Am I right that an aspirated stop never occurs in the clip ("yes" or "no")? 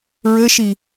yes